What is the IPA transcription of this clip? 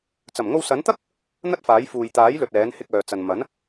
t͡sɐ˨˩mŋo˧wsɐ˨˥n t̪ɐ˥k̚ | n̪ɐ˥t̚faː˨˥j fuː˨jt̪aː˨˥jlɵ˨t̚ ɛː˨˥nhɪ˧k̚œː˨t͡sɐ˨n mɐ˨˥n

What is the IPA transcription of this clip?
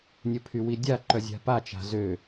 nʲəpʰywidʲa ǃœzʲa̤pat͡ʃa̤ zø

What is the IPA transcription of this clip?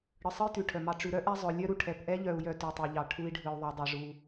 ɽɯ˨sˤɯ˥jtʉ˩ ʈʰœ˩mɑ˨ ʈ͡ʂʉ˨ɾœ˥ʔɛ˦ zˤœ˨lʲœ˥ɾu˩ ʈʰɛ˨pʔɛ˦ʎœ˨u̯ jœ˦ tʉ˨tˤi˩ʎɑ˨ ʈʰu˦i̯ɖʱɯ˨u̯ðˤi˨ dˤɛ˨ʐu˨

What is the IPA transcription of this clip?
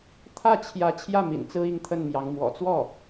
t̪ʰä˥˩t͡ɕʰjä˧˥ t͡ɕʰjä˥˩mḭ˨˩n t͡sɹ̩˥i˥˧ŋt̪ʰə˥˩nmjɑ˧˥ŋ mwɔ̰˨˩t͡swɔ˥˩

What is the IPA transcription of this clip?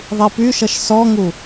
ðˤipyʃʌʃ sɔŋu

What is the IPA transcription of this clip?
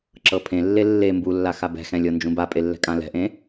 ǁɤpʰẽlːe lːe mbulːa xabɛ̤xɛ̃ lʲɤnd͡ʒũbapʼe lːɛ̤kʼãlɛ̤ʔẽ

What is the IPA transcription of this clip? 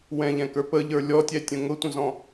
wɛ̃ʎɛ̃kə˞ pəʎə˞ lʲɔtʲɛtʲə̃ ŋʊtʷə̃zɔ̃

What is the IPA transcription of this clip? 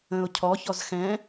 ə̃ʊ̯ cʰɔ çɔzxɛ̃

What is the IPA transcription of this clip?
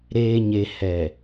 ɾeː˨ɲe˨hɛ˨

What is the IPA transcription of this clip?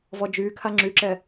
vɔd͡ʒykʰa ŋ͡ǁyǁɛ

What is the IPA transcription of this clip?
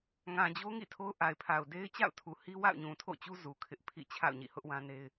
ŋã˨d͡ʑo˦ ŋḭ˦˨tʰo˦ʊ̯ ʔa˨ɪ̯pʰa˨ʊ̯ de˦ɪ̯t͡ɕa̰˦˨ʊ̯tʰu˨hi˦ wa̰˦˨ʊ̯ɲũ˨tʰo̰˦˨t͡ɕu˦ zu˨ kʰɪ˦ʔpʰḭ˦˨ t͡ɕʰa̰˦˨ʊ̯ɲḭ˦˨hʊ˦ʔwã˦ ne˦ɪ̯

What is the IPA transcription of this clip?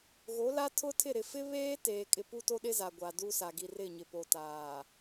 ɣo˨˦ la˦tʰʊ˦tʰɪ˦˨ ɾɪ˨fɪ˦βeː˦teː˨ kʼɪ˨pu˦to˦ɗɪ˦ za˨ɡʷa˨du˦sa˨ ɡi˨rɪ˦˨ɲɪ˨ po˨taː˨

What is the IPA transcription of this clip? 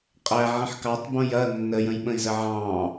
qʼæʕə̃ħ kɑtˤbõj ɐ nːəjə̃jɓə̃i̯zə ʕɑ̃

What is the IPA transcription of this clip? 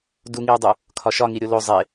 duŋiu̯dˤu | kʰɒʃɒ ŋiɾʲolo zˤe

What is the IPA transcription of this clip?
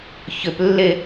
çʏplːe

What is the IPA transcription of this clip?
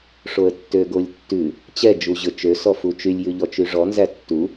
ʂoə̯tːøɡolʲtːʉ | t͡ɕɛ d͡ʒuʑɵt͡ʃø sɔfut͡ʃylʲ jʉʎɔt͡ʃyʐɔ nzætːu

